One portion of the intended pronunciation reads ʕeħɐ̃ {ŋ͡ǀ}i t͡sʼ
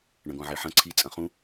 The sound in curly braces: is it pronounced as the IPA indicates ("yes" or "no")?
no